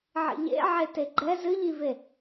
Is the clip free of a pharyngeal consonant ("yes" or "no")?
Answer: no